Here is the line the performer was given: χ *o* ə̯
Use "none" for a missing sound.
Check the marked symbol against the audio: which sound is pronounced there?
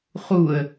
u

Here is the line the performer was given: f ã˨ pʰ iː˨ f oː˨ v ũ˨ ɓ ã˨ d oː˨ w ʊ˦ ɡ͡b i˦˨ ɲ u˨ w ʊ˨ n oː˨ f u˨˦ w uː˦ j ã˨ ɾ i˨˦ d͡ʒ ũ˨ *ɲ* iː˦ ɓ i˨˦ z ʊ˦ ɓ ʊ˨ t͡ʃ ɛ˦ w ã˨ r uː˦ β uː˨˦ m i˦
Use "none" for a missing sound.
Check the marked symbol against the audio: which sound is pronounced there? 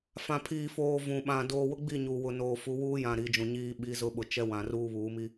ɲ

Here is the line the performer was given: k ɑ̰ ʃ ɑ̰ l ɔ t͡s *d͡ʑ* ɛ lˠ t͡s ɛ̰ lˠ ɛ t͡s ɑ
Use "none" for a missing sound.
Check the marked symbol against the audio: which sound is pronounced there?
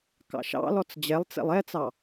d͡ʑ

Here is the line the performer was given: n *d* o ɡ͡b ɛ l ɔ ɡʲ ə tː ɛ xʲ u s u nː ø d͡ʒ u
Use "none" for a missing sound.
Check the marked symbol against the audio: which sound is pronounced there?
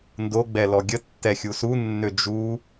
d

